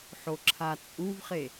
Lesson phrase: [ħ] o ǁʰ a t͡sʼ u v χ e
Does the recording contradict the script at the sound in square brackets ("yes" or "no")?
no